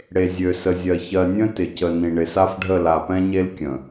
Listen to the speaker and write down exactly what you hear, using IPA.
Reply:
ɽ e˨ zʲ ø˨ s ə˨ zʲ ɜ˨ ç ɜ˨ nʲ ə̃˦ t ɪ˨ c ə˨ n ĩ˨ ɳ ɪ˨ s a˦ f ɖʱ ə˦˨ l a˨ p ɛ̃˦ ɲ e˦ l kʲ ə̃˨

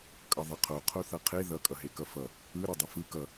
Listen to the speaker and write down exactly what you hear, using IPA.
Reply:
kʼ ʌ ðˤ ʌ qʰ o qʰ o θ ʌ qʰ e ð ʌ kʼ ʌ ɦ e k ʌ f ʌ | ɯ ɾ ʌ dˤ ʌ f ɯ k ʌ

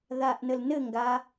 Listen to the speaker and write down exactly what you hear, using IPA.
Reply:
ð a ʔ n ə l n ɘ ŋ ɡ a

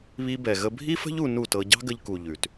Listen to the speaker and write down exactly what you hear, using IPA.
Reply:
β i˧ b ɛ˨ ɣ ə˧ bʱ i˦ f ə̤˦ ʎ u˧ n u˦˨ t ɤ˧ ɟ ɑ̤˦ ɡ ə˧ ʎ k u˨ ʎ ʉ˨ t

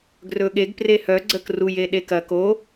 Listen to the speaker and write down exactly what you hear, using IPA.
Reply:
ɡ r ɵ ɠ e ɡ p r e h œ ɡ͡ǀ ə k r u j e ɗ e k ɐ k o

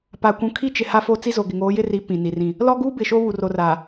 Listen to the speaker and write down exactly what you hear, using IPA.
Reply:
p a˨ kʷ ũ˨ kʰ i˦ t͡ʃ ɪ˨ h a˦ f o˦ t͡s i˦ z o˨ ɡ ɪ˨ ŋ oː˨˦ j ɪ˦ r i˨˦ p ĩ˨ n i˨ r ĩ˦˨ | l ɔ˦ ɡ uː˦ b ɪ˨ ʃ o˦ β u˨ r o˨ r aː˨

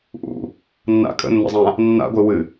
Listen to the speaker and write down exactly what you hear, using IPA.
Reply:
ʔ ṵ | nː a̰ kʼ ə̰ nː ə̰ zˤ ã | nː a̰ ɡʷ ɪ w ɨ

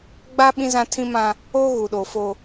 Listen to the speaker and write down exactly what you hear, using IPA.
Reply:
ɡ͡b a˦ ɓ ĩ˦ z ã˦ tʰ ĩ˦ m ã˦ | o˦ ɣ u˨ ɗ o˨ f o˦

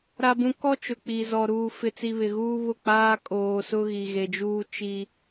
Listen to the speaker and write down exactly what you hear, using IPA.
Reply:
ɾ a˦ b ũ˦ k ɔ˦ t͡ʃ ʊ˨ k͡p i˨ z ɔ˨ ɾ uː˦ f ɪ˦ t͡s i˦ β ɪ˨ ɣ uː˦ β ʊ˦˨ k͡p aː˦ kʼ oː˨ s ʊ˦ ɣ i˨ ɣ e˨ d͡ʒ uː˦ t͡ʃ i˦

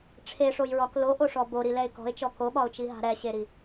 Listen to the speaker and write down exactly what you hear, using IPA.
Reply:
ʈ͡ʂʰ e ʂ o j ɹ ɒ k l o ʔ o ʂ ɔ b o ɾ i l ɛ ɪ̯ k ɔ̤ ɪ̯ t͡ʃ ɔ k o ɓ ɒ ʊ̯ t͡ʃ i ɦ a̤ ɾ ɛ ɕ e ɾ i

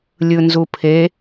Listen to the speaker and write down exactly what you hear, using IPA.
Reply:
lʲ ɯ n z u pʰ e

